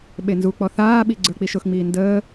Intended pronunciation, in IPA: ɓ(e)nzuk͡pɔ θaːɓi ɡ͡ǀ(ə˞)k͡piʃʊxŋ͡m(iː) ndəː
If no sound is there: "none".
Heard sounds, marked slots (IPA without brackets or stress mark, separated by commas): e, ə˞, iː